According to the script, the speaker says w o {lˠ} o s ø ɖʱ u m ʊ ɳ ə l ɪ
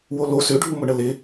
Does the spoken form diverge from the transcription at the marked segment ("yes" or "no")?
yes